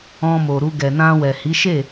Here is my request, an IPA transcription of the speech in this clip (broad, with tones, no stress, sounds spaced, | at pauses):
ɔ̃˧ m o˨ ɾ u˧ ɡ ɛ˨ n ã˧ w ɛ˨ h i˨˦ ʃ e˦˨